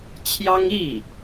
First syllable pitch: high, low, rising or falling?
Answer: high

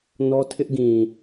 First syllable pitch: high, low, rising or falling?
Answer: high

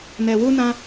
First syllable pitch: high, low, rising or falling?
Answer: low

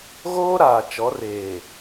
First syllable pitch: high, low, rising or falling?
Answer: high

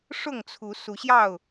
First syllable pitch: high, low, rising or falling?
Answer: falling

